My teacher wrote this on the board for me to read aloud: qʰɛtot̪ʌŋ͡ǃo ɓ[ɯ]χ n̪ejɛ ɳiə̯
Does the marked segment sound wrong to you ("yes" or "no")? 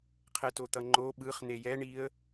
no